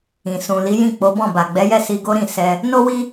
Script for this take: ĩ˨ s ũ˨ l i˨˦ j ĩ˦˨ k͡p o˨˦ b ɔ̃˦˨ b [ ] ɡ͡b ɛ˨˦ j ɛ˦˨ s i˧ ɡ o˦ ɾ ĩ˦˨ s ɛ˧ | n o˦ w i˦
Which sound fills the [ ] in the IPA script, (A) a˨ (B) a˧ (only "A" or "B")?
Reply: A